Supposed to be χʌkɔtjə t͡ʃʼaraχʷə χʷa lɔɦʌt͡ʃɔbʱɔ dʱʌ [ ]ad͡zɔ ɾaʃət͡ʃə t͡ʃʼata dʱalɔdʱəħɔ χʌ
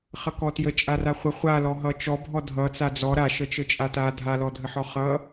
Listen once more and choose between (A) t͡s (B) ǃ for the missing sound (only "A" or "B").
A